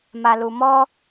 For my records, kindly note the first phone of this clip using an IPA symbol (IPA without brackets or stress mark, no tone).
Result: m